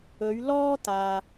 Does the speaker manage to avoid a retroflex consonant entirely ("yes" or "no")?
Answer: yes